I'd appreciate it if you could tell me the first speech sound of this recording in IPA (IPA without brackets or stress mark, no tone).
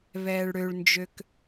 β